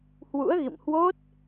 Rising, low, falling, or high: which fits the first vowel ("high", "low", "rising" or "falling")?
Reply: rising